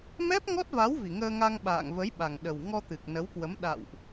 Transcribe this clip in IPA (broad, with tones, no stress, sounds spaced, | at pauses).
m ɛ˦˥ p̚ ŋ ɔ˦˥ t̚ v a˨˦ w v i˨˩ ŋ əː˧ ŋ a˧ ŋ ɓ a̰ː˧˨ ŋ v ə˨˦ j ɓ a˨˩ ŋ ɗ ə˨˩ w ŋ ɔ˧ t̪ ɨ˨˩ k̚ n ə˨˦ w k w ə˨˦ m ɗ a̰˧˨ w ʔ